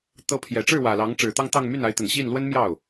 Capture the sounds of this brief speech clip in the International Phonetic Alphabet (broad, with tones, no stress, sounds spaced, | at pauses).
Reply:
t̪ ɤ˧˥ pʰ j ɛ˨˩ ʈ͡ʂ ɻ̩˥˩ w ä˨˩ l ɑ˧˥ ŋ ʈ͡ʂ ɻ̩˨˩ t̪ ɑ˥˧ ŋ t̪ ɑ˥˧ ŋ m y˥˩ n a˧˥ ɪ̯ t̪ ə˨˩ n ɕ i˥˩ n l w ə˥ n m j ɑ˥˩ ʊ̯